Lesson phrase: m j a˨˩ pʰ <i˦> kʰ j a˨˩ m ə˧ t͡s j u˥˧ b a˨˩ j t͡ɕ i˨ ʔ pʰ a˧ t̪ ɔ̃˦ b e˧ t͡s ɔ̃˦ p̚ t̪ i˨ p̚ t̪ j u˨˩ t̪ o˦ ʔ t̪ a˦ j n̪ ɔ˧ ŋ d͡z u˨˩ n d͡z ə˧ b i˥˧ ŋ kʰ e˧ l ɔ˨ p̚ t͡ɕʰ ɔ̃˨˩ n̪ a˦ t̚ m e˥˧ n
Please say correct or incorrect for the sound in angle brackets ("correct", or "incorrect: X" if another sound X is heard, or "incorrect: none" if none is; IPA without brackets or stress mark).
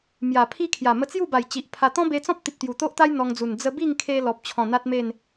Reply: correct